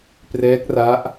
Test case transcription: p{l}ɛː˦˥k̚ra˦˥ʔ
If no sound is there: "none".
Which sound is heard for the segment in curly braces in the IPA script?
r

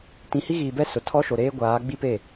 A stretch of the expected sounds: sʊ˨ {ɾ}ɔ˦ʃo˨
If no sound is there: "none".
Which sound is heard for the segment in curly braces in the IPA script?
tʰ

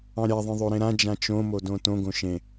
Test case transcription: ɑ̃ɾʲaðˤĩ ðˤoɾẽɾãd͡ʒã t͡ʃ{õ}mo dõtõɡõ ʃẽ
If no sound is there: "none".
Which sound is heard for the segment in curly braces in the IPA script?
õ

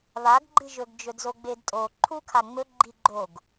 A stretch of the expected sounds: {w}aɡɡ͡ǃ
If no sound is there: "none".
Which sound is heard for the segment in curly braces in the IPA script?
β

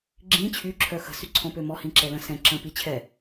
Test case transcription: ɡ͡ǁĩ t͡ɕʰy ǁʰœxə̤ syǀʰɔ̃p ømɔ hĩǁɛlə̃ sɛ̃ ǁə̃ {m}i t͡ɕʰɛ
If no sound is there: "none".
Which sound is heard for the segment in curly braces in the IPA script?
p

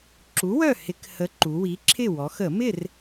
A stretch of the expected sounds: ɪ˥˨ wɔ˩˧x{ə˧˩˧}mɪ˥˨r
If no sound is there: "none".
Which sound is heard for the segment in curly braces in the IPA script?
ə˧˩˧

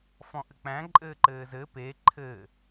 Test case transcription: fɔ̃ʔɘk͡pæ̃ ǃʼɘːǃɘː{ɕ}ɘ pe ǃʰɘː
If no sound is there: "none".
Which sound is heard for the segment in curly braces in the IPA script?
z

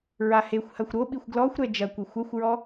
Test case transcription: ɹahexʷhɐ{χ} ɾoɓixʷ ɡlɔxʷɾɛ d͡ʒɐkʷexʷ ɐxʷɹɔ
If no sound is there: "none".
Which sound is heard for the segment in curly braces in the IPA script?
xʷ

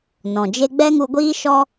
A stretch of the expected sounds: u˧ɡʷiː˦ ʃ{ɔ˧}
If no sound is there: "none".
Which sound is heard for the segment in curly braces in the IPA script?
ɔ˦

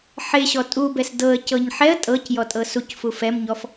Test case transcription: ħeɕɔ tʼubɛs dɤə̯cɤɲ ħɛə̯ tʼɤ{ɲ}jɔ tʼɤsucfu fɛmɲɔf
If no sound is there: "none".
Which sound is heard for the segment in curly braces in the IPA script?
c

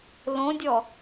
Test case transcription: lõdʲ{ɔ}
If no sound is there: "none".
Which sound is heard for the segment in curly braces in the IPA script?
ɔ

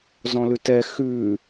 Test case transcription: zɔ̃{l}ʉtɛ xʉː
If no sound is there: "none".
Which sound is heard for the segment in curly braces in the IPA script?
l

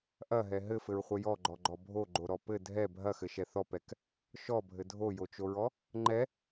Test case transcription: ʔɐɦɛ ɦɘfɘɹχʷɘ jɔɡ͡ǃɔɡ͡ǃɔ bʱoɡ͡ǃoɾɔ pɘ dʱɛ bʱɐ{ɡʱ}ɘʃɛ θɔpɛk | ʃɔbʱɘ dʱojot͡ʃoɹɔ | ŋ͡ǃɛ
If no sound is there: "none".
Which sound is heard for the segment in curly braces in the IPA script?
x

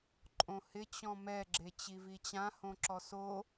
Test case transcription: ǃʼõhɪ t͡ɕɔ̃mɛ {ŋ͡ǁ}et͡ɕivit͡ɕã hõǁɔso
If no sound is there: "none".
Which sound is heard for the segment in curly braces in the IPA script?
ɡ͡ǁ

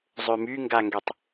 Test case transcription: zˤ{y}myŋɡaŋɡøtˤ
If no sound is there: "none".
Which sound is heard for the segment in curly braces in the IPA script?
ø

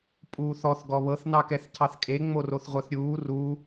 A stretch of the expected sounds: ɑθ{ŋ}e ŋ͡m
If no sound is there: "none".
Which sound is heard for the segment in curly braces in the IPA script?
kʼ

